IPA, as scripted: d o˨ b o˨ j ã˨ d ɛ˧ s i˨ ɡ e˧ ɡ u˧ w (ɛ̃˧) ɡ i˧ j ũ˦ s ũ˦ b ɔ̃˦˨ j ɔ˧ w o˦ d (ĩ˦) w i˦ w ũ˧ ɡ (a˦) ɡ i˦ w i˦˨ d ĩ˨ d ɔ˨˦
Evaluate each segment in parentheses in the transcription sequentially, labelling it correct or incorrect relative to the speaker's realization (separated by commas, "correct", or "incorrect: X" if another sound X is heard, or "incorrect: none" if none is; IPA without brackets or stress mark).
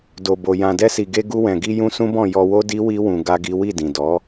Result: incorrect: ɛ̃˨, incorrect: i˦, correct